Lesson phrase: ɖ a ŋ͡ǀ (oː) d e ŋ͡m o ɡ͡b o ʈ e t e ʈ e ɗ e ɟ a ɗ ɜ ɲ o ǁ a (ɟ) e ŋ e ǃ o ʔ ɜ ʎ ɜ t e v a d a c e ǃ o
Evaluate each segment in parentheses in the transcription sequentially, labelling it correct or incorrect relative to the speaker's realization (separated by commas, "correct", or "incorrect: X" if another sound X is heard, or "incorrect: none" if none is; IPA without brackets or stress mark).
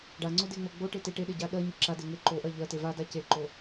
incorrect: o, incorrect: d